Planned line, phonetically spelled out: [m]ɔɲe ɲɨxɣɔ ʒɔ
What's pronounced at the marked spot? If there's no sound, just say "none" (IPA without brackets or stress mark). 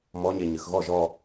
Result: m